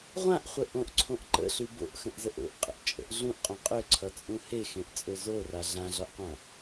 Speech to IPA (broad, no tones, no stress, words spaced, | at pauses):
ʁʷãʔχʷə ʔõʔǀʰõʔ ǃə̰ɬʉ bo̰ʔxə̃ʔzəʔ o̰ʔqʼə̰ʔt͡ʃʼə̰ʔ ɮũʔqʼõ qʼøǀʰʌt͡sʼũ hexẽʔt͡sʼø zora ɮãɮɒʔqʷã